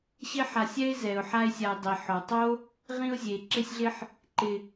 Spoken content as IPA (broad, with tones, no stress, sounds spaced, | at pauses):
ɕ ɪ˥ ħ a˨ sʲ ɛ˥ ɪ̯ z ɛ˩ ʊ̯ ħ a˦ ɪ̯ sʲ a˨ ɪ̯ dˤ i˩ ħ ɔ˩ tˤ o˥ | ʁ ĩ˦ ʊ̯ zʲ e˩ ǁ ɪ˦ sʲ ɮ ɪ˦ ħ | ǃ ɪ˨